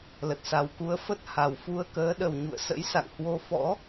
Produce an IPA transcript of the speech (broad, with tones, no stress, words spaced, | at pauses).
lə˨˩t̚sa˨˩wku˨˦ə̯fə˦˥t̚ ha˨˩wfu˧ə̯kəː˨˦ ɗə˨˩w ɲṵ˧˨ə̯sə̰˧˥jsa̰˧˨ŋhwo˧ fɔ̰˧˥